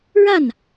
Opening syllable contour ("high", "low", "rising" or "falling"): falling